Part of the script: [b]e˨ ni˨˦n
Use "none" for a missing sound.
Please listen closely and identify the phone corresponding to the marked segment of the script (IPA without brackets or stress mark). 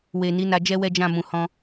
w